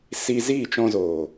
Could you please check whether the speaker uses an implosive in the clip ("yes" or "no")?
no